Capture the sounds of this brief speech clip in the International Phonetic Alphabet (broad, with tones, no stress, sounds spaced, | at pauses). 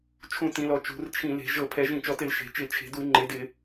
t͡ʃʰ ũ˧˩˧ t ĩ˩˧ l ɔ˩˧ t͡ʃ ṳ˩˧ r t͡ʃʰ ĩ˧˩˧ l e̤˩˧ ʒ ɤ˧˩˧ pʰ ɛ˩˧ ʒ ĩ˧˩˧ t͡ʃ ɔ˩˧ t ɪ˧˩˧ l ʃ e̤˩˧ t͡ʃ ɪ˧˩˧ t͡ʃʰ e̤˩˧ d u˧˩˧ ŋ͡ǃ e˩˧ d ɪ˧˩˧